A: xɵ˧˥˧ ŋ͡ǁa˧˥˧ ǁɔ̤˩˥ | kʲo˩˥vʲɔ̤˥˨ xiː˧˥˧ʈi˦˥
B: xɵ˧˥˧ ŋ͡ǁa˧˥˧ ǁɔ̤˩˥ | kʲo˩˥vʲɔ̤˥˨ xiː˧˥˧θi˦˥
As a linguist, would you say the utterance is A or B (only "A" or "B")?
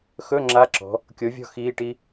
A